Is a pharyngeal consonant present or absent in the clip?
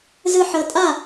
present